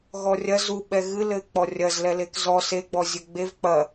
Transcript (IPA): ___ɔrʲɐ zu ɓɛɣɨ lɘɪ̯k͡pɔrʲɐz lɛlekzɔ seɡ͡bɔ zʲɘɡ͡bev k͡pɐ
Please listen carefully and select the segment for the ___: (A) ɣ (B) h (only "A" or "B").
A